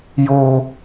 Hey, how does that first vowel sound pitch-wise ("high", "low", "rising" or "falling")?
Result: high